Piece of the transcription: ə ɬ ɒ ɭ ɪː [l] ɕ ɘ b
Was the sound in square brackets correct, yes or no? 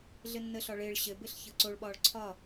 no